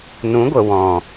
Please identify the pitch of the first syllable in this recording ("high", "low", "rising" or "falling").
rising